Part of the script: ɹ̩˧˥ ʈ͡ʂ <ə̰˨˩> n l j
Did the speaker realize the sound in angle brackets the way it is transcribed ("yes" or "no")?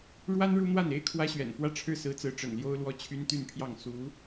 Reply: yes